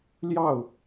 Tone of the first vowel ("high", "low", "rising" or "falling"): falling